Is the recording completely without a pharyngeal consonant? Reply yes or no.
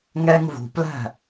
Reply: yes